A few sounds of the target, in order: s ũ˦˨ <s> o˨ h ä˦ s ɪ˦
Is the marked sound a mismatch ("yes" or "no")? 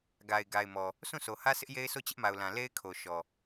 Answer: no